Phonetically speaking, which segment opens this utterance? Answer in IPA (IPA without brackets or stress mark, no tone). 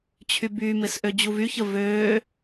t͡ɕʰ